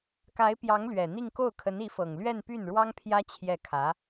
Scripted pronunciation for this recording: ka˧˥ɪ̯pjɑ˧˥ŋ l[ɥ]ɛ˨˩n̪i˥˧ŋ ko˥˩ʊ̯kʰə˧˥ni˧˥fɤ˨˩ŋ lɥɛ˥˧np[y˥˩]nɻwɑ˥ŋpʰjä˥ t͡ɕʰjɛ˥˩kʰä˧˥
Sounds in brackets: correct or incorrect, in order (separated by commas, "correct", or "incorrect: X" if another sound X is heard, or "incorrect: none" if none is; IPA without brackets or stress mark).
correct, correct